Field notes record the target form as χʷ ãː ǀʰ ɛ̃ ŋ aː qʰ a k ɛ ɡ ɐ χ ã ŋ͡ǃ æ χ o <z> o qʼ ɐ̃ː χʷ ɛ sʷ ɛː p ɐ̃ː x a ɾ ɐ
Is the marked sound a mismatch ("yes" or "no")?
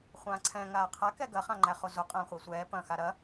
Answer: no